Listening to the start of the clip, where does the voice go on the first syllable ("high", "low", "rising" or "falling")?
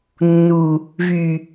low